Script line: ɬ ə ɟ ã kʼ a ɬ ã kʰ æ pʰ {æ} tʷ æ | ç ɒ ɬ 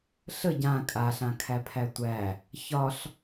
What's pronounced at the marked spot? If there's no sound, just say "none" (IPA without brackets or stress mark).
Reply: æ